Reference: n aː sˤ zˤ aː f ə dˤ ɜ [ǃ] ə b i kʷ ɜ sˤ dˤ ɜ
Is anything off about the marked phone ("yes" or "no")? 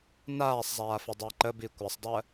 no